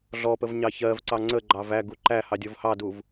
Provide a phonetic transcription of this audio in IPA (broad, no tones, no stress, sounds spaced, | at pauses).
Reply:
ɮ ɔ p ə v ɲ ɑ ç ɜ v ǀ ɑ ŋ͡ǀ ə ɡ͡ǃ ɑ v æ ɡ u ǃ æ h ɑ dʲ ɔ v h ɑ d u v